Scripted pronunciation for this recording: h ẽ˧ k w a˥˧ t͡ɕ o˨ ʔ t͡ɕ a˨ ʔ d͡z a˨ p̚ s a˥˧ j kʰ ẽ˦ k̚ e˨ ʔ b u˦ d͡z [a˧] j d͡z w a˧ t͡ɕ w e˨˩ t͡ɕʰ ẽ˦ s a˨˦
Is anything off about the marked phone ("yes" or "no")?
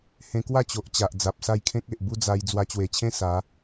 no